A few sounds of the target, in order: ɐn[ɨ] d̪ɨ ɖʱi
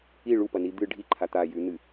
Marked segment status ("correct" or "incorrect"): incorrect